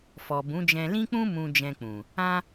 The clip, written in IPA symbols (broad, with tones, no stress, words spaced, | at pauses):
fɔ˨bũ˨˦d͡ʒɛ̃˧ lĩ˦k͡pũ˦ mũ˧ d͡ʒɛ̃˧k͡pũ˨ | ã˦